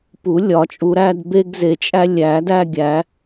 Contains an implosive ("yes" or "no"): no